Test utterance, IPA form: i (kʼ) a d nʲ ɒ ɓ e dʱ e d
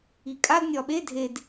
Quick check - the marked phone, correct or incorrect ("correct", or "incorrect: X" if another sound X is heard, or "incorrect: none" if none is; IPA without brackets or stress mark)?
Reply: correct